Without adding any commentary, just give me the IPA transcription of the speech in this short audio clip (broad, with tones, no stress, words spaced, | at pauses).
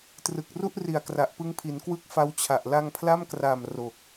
trɯ˨˩k̚ru˥˩ʔ ri˨˩a̯kra˨˩ʔpɯ˦˥ŋpʰi˩˦n kwɯ˥˩k̚fa˦˥wt͡ɕʰa˨˩ʔ la˧ŋpʰla˥˩mkraː˨˩m ro˨˩k̚